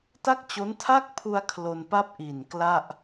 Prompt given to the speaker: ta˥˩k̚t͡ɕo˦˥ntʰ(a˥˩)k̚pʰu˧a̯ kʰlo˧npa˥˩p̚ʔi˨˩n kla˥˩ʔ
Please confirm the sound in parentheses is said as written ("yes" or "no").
yes